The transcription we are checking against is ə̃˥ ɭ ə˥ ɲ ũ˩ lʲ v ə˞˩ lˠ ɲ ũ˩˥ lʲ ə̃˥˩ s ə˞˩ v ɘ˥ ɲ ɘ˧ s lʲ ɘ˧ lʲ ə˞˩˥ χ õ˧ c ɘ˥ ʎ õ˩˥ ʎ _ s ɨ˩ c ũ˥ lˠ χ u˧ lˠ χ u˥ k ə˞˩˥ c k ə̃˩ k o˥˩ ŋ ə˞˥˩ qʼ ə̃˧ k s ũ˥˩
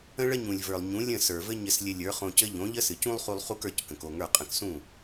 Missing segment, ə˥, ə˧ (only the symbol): ə˥